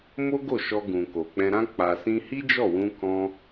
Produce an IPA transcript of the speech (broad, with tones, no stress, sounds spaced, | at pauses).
m o˦ ɡ o˦˨ ʃ ɔ˧ ɡ ũ˨ k o˨ k͡p ɛ̃˧ ɾ ã˦ k͡p a˧ s ĩ˦ h i˦ d͡ʒ ɔ˦˨ w ũ˧ k ɔ̃˦